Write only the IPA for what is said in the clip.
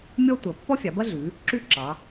mʲ ɔ˦ tʷ ɐ˩˧ pː ɔ˦ fʲ ɑ˩˧ b ɐ˦ ɮ ʉ˩˧ | ǁ ʉ˦ ǁ ɑ˩˧

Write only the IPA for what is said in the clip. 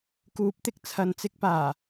k uː˨˥ p̚ t̪ ɪ˨˥ k̚ t͡sʰ ɐ˨ n t͡s ɪ˧ k̚ p aː˨˩

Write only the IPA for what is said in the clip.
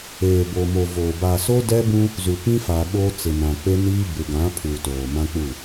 eː˨ b o˨ m o˨ v oː˨ b aː˨ s o˦ d ɛ˦ b ũ˦ | z u˨ p ĩ˦ f a˨ ɓ oː˦ t͡s ɪ˨ n ã˨ k͡p e˦ n iː˦ b ɪ˨ ɡ ã˨˦ pʰ uː˨ t oː˨ m ã˦ k͡p u˦˨

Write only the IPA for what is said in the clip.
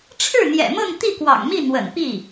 ʈ͡ʂʰ ɻ̩˥˩ n̪ j ɛ̰˨˩ m ɤ˥˧ ŋ t̪ i˥˩ k w ɑ̰˨˩ ŋ m i˥˩ n̪ w ə̰˨˩ n p i˥˩

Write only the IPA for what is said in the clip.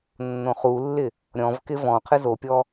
nː õ χ u lː ɪ | ɾʲ ɔ̃ v k ɪ v ɔ̃ qʰ ɘ z o pʲ ɔ

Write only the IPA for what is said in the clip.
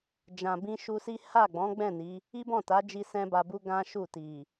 d͡ʒ ã˨ b ĩ˧ ʃ u˧ s i˦ h a˦˨ ɡ͡b ɔ̃˨˦ ɡ͡b ɛ̃˦˨ n i˨˦ | i˦ b ɔ̃˦˨ t a˨˦ d͡ʒ i˧ s ɛ̃˦ b a˧ b u˦ ɡ ã˦ ʃ u˦˨ t i˨

